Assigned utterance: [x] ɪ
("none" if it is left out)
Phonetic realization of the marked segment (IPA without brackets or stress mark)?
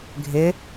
ɡʱ